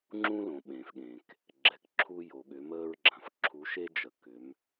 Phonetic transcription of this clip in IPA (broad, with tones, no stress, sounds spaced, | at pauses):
ŋ͡ǁ ũ˧ l õ˩ ɓ ẽː˩ f ɠ ẽ˩ k | ɡ͡ǁ ɛ˩˧ k ǁʰ u˧ j o˩ ɠ ʏ˩˧ m əː˧ ɹ ɡ͡ǁ ã˩ f ǁʰ u˩˧ ʃ e˧ d͡ʒ ə˩ k ʏ˩˧ m